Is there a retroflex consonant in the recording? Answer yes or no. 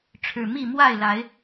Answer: yes